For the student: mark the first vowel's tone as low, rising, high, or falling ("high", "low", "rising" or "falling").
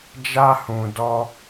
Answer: high